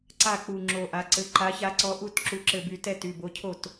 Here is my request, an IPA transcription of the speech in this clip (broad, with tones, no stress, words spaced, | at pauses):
ǀa˥˩k͡pu˧˩ ŋ͡ǁo˧˩ʔa˨˥ǀɘ˨˥ ǃa˨˥ça˨˥ǀɔ˨˥ʔu˥˩t ǁu˨˥ǁɘ˧˩by˧˩ tɛ˥˩ ty˩˧˩bo˨˥cʰo˥˩t